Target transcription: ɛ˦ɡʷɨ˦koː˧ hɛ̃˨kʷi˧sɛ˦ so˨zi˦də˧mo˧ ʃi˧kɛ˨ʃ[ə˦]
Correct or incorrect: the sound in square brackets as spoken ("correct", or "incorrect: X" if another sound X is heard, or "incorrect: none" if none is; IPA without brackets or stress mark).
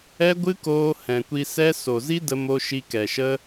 correct